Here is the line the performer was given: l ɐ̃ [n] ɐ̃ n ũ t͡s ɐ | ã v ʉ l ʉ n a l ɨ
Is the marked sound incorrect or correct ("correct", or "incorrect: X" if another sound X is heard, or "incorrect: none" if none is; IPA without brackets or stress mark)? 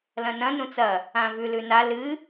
correct